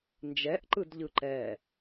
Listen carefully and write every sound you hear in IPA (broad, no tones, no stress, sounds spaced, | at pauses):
n d͡ʒ ɛ ʔ ǃ ɯ d ʎ ɯ ǃ ɛ